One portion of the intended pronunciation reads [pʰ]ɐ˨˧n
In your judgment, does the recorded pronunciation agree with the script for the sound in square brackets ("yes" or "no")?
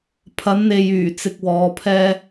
yes